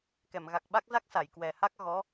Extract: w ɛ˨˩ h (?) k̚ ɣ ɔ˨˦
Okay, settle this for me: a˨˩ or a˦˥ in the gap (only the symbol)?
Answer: a˦˥